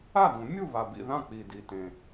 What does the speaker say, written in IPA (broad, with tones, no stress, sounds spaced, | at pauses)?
a˥˨ d ũ˨˩˦ mʲ u˥˨ β a˨˩ b ḭ˥˨ ð ã˥˨ k͡p i˨˩ d i˨˩ t ẽ˨˩